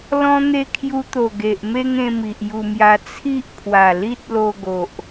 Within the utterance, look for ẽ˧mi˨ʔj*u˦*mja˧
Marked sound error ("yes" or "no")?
yes